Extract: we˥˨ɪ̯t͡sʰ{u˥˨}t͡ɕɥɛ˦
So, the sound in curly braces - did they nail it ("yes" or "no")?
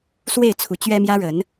no